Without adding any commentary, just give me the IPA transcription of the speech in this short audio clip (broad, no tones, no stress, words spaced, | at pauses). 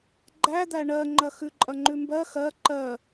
ɡ͡ǃæd̪æ ɳɜŋ͡ǃɐ xʉǃʼɐŋ͡ǃʉ mbɜ xɜ ǃɜ